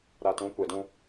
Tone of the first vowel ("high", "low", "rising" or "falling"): low